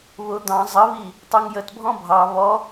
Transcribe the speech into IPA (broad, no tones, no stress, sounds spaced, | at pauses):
β ʊ d̪ ɑ̃ zˤ ə β i | tˤ u ŋ j ə t bʱ ɔ̃ bʱ ɑ β ɔ